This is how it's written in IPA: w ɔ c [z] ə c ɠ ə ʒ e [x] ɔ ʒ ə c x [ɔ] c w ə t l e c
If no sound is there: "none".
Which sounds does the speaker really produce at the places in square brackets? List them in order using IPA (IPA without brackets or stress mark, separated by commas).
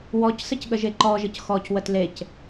s, ǃ, ɔ